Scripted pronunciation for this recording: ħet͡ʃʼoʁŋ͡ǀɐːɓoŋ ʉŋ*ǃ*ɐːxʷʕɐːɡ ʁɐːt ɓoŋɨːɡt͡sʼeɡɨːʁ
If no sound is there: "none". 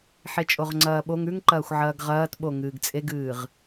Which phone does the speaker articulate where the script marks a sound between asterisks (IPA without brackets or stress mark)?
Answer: ǃ